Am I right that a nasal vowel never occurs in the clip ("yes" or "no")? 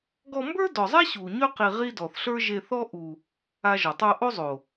yes